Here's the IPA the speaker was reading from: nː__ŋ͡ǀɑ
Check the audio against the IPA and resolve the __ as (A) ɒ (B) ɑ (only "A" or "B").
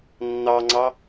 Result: B